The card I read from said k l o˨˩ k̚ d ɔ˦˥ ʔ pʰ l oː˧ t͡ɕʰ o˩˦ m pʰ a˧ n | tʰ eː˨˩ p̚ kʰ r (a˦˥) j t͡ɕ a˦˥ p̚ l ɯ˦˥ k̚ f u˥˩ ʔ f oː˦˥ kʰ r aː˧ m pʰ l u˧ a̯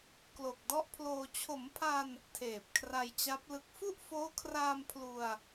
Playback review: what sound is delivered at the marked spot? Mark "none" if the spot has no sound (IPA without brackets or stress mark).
a˧